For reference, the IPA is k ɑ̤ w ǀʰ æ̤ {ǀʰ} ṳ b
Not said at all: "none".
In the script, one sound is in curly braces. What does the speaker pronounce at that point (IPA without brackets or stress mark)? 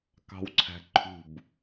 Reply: ǃʰ